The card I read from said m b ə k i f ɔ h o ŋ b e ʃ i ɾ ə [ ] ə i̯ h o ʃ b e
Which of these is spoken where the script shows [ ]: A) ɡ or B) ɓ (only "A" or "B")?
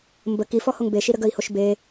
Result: A